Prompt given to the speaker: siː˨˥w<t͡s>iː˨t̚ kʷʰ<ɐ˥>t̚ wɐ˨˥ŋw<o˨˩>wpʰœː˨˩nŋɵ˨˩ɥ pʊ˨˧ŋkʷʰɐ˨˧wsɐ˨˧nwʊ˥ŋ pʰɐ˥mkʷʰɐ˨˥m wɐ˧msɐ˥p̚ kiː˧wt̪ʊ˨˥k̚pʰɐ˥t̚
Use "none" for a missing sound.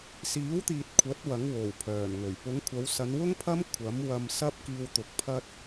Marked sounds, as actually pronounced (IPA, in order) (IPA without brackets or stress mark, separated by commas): t̪, ɐ˨˥, o˨˩